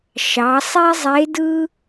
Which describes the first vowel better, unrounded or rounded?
unrounded